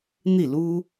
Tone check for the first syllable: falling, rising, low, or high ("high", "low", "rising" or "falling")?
falling